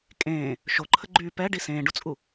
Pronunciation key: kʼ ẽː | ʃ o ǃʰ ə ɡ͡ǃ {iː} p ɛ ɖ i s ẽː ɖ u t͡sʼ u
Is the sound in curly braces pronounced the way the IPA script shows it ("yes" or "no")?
no